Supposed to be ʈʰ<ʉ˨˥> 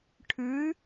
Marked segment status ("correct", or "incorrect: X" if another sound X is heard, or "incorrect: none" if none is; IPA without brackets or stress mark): correct